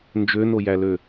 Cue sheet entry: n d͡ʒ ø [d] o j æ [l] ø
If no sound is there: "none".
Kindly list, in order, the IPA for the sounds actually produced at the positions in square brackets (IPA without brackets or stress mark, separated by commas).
n, l